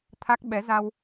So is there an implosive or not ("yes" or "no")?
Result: yes